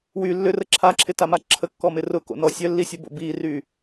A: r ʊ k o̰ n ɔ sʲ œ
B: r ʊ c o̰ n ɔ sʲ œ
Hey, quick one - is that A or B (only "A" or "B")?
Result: A